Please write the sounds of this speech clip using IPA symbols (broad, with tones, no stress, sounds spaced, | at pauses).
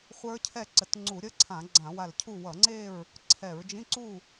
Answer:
χʷ ə˞˦˥ cʰ ɛ˥˨ ǀ ə˧˩ t ŋ͡ǀ u˧˩˧ ɾʲ ə˧˥˧ ǀʰ ã˧˩˧ ɡ͡ǀ ã˧˩˧ w a˧˩ l cʰ u˥˨ w ʌ˧˩˧ ŋ͡ǀ e˥˨ ɹ | ǀʰ ɛ˧˩˧ ɹ d͡ʒ ĩ˧˥˧ ǀ u˥˨